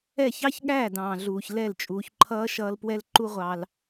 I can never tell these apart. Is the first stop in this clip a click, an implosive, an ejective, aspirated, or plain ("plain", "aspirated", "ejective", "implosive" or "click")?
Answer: implosive